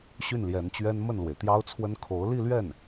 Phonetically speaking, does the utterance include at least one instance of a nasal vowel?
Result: no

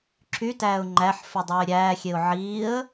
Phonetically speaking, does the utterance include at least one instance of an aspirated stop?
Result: yes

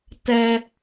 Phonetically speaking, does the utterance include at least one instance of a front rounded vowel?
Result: no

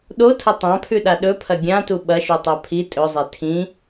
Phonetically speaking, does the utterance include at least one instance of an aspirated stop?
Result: yes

